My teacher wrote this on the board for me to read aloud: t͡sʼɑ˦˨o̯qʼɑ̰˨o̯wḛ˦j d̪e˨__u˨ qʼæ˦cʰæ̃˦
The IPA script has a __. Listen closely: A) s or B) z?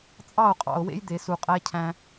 A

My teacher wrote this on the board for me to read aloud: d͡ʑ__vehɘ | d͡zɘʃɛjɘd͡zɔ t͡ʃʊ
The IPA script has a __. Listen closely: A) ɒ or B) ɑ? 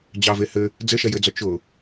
B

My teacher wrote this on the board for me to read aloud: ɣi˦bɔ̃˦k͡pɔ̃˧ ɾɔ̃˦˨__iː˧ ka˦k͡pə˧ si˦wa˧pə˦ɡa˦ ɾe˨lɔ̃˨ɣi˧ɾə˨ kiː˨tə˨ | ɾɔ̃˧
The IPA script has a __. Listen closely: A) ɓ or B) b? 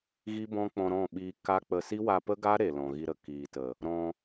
A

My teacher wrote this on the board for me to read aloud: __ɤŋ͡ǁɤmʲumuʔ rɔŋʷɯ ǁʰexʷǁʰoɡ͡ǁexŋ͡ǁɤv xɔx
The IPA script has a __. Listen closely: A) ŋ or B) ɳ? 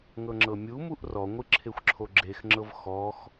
A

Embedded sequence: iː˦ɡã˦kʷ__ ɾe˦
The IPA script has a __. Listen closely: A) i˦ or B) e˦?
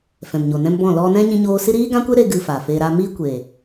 B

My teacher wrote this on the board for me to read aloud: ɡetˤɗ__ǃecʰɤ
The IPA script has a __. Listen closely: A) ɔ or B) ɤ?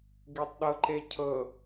B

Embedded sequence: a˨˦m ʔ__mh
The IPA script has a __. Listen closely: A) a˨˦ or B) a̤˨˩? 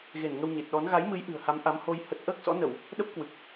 A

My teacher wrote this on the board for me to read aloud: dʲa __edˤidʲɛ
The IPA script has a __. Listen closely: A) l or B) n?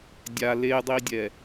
A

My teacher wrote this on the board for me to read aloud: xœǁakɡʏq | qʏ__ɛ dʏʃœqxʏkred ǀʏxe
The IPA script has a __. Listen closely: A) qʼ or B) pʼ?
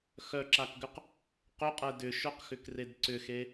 A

